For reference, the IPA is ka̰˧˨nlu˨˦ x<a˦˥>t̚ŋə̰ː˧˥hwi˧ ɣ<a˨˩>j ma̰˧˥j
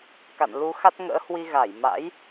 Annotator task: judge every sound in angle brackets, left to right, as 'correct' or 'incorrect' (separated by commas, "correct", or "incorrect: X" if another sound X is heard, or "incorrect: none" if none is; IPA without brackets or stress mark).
correct, incorrect: a˧˩